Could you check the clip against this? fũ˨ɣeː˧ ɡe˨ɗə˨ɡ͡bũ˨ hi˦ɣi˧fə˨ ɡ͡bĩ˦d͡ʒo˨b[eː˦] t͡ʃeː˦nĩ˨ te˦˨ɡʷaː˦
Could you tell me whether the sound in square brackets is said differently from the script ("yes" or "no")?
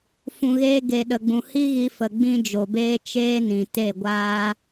no